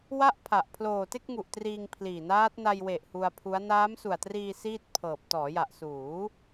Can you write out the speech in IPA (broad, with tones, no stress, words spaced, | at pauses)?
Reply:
wa˥˩ʔpʰa˨˩ʔ pʰloː˨˩te˥˩k̚ŋu˨˩ʔ triː˧ŋpʰliː˨˩naː˦˥t̚ na˧jwe˨˩ʔ hu˧a̯pʰu˦˥a̯ naː˦˥msu˨˩a̯triː˧ siː˥˩t̚pʰɤː˨˩p̚ tɔː˩˦ja˨˩ʔsuː˩˦